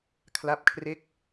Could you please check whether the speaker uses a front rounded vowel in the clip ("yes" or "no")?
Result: no